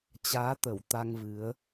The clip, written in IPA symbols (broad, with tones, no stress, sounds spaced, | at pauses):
t͡ɕ aː˨˦ t̪ ə˧˩ w t̪ a˧ ŋ v ɨ˨˦ ə̯